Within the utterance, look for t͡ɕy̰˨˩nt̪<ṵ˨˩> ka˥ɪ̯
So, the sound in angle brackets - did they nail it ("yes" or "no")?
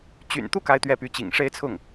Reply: no